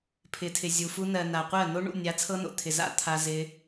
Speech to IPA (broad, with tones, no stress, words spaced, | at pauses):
pʰɪ˨tʰɪ˨zʲu˨ fu˧nɜ˨na˨qʷɜ˦˨ no˧ɳṵ˦˨ nʲa˨˦t͡sʰɤ˧no̰˨ t̪ʰɪ˨za̰˧ t̪ʰa˧zɪ˧